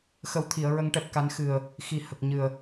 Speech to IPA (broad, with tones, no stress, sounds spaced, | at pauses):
x ə˨˩ w t̪ʰ i˨˩˨ ə̯ ɹ ə˨˩˦ ŋ ʈ ɛ˨˩ p̚ k a˨˩˦ n x ɨ˨˩ ə̯ | x i˨˩ h ə˨˩ k̚ ɲ ɨ˨˩ ə̯